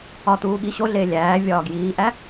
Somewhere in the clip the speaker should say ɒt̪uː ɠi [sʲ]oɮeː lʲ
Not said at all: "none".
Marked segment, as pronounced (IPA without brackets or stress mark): ɕ